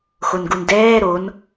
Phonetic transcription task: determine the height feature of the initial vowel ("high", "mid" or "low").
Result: mid